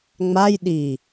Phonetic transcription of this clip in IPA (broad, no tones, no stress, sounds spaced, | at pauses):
ŋ͡m a j ɗ i